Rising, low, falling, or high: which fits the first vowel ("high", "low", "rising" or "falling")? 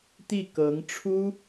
falling